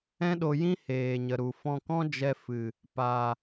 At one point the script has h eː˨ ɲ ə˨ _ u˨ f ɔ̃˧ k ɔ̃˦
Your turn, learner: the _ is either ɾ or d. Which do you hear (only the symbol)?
ɾ